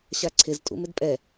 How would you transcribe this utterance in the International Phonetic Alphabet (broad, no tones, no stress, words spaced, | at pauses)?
ɕaǀʰɪz tʼṵmɪdpʼɛ